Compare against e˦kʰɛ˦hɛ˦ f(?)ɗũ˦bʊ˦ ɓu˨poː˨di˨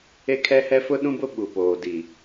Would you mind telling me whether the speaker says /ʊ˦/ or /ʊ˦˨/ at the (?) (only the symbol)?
ʊ˦